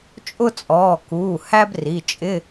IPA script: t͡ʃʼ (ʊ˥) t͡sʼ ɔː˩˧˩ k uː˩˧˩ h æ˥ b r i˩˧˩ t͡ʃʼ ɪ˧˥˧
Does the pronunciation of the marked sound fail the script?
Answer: no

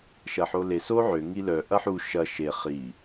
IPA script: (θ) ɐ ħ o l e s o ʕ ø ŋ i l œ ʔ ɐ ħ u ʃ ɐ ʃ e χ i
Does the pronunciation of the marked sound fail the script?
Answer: yes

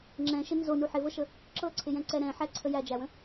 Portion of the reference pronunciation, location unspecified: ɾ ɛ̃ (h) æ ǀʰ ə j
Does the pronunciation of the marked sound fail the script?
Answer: yes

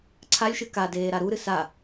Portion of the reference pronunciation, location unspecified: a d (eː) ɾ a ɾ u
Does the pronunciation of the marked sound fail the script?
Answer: no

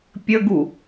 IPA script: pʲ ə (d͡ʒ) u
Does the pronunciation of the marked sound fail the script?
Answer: yes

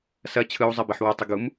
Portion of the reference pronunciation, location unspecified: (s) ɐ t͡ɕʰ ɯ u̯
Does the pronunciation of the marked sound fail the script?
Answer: no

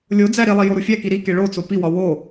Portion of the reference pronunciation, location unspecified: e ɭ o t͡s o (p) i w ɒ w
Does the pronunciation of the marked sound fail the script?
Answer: no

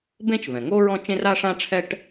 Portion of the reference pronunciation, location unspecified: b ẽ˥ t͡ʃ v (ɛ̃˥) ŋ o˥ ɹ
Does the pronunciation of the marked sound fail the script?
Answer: yes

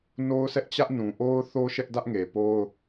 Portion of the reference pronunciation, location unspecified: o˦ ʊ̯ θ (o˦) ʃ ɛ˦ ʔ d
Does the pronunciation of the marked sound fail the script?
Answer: no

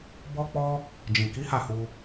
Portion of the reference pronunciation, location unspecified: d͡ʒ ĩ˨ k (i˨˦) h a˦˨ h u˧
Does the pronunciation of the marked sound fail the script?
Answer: no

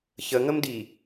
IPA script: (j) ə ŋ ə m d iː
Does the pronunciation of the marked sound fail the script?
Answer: yes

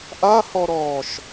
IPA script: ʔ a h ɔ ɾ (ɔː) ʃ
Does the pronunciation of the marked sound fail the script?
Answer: no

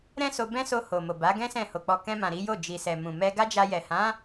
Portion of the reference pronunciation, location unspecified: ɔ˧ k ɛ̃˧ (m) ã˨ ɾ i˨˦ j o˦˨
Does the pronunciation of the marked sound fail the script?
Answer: no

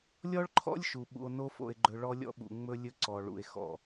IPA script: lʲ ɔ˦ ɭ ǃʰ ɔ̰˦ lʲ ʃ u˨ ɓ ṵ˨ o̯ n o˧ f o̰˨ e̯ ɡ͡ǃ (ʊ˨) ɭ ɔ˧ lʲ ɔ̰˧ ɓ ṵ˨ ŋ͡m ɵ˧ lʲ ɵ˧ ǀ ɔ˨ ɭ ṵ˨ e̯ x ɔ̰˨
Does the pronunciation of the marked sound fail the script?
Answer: yes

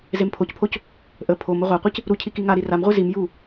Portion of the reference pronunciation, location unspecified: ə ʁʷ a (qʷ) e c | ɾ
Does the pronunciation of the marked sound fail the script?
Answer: no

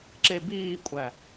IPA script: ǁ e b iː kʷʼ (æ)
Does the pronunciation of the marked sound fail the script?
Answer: no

